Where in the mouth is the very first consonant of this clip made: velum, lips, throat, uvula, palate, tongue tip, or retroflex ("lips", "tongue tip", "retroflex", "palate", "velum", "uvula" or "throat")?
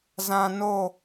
tongue tip